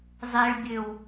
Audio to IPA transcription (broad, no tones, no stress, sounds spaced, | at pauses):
zˤ e ɭ bʲ ø w